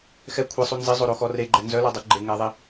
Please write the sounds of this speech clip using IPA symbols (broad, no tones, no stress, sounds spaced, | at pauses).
x ɛ kʷʰ e sˤ u n z i zˤ o ɾ o x ɔ r e ɡ͡ǃ ɛ n z œ l ɔ dˤ u ɡ͡ǃ e ŋ ɛ ðˤ i